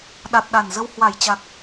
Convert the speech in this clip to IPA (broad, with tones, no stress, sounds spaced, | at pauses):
ɗ a˨˩ t̚ ɗ a˨˩ n z ə˧ w h w a˧˩ j t͡ɕ a˨˩ k̚